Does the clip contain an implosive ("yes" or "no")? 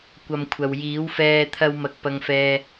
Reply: no